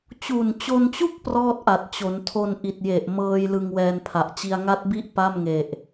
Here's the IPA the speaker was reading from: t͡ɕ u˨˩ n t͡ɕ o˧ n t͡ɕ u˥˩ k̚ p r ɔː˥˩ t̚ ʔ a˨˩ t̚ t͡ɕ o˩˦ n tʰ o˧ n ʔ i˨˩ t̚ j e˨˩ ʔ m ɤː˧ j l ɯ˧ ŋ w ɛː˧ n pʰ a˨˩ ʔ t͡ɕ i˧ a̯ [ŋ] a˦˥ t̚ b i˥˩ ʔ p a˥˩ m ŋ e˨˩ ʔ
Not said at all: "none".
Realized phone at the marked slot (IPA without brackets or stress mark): ŋ